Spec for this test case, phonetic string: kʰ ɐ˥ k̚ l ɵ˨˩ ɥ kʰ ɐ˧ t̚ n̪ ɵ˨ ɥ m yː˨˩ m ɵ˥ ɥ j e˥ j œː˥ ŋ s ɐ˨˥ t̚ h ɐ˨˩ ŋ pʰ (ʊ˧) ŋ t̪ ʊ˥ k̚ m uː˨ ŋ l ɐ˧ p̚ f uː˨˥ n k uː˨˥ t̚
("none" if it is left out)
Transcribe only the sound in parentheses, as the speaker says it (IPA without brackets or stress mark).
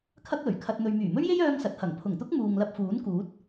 ʊ˨˩